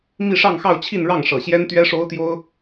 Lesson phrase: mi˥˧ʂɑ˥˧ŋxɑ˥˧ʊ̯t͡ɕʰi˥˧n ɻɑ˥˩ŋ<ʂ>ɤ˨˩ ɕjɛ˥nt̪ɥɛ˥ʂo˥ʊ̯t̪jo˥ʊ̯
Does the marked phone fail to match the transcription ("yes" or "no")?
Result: no